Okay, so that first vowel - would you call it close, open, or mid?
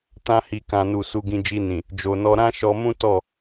open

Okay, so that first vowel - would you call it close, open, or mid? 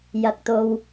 open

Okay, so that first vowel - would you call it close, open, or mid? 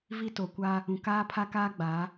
close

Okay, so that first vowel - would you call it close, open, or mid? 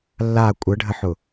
open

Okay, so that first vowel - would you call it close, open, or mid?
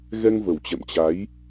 mid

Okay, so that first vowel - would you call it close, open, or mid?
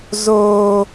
mid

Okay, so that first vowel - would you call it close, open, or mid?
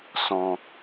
mid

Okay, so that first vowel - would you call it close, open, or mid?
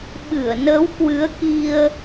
close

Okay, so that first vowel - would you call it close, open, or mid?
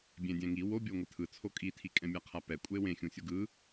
mid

